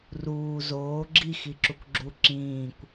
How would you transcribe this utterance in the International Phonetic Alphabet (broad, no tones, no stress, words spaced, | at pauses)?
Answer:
ruː zoː ɡ͡ǁi xiǁukʷɡ͡ǁu ǁĩːkʷ